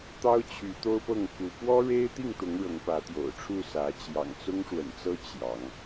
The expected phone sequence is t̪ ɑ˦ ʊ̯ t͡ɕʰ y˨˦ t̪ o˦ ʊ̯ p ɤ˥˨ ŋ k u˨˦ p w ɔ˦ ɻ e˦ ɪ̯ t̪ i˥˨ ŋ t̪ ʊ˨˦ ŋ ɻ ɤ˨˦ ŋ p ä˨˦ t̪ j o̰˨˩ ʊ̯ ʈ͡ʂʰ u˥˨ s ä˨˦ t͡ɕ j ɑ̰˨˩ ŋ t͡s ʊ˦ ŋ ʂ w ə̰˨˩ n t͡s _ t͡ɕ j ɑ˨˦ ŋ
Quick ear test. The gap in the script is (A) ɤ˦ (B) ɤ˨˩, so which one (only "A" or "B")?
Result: A